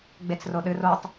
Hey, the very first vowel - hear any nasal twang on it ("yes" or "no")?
no